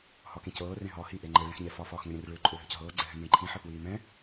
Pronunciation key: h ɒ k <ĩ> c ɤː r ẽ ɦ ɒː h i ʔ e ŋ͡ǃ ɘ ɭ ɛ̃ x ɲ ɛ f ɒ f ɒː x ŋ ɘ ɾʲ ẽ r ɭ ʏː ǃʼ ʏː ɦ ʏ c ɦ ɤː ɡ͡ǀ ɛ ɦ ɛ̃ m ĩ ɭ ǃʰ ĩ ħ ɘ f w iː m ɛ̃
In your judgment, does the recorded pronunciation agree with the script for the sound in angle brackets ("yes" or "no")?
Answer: yes